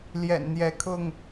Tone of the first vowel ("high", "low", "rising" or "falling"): low